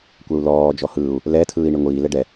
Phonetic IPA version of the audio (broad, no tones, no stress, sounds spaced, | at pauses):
kʷ ɛ u̯ l ɔː d͡ʒ ɔ h ɯː u̯ | l ɛ tʰ ɯː i̯ ɳ i ŋʷ iː l ɛ ɖ ɛ